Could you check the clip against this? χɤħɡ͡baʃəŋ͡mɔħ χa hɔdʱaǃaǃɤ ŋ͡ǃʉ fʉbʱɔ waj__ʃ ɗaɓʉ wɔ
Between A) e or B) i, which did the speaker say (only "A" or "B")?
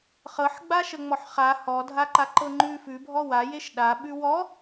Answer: A